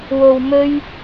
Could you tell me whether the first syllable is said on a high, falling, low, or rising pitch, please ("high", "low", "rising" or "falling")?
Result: low